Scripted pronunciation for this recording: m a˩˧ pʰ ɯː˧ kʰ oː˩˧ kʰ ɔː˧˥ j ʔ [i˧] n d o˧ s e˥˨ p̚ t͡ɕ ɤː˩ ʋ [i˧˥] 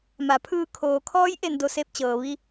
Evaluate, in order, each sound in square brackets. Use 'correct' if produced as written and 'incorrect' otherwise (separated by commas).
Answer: incorrect, incorrect